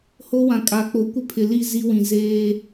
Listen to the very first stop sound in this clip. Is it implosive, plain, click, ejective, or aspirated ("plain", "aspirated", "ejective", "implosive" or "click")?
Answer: ejective